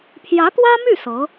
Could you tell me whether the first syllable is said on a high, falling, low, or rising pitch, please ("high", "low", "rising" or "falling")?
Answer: rising